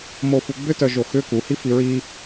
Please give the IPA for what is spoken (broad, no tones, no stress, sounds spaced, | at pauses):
m o f u ɡ͡b ʏ t œ ʒ o x ʏ k u h i f i ɹ i